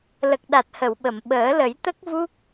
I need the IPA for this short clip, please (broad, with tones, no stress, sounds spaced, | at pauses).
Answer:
l ə˨˩ k̚ ɗ a˨˩ t̚ h ə˨˩˨ w ɓ ə˨˩˨ m ɓ əː˨˩˦ l ə˨˩˦ j t̪ ə˦˥ k̚ v u˦˥ k̚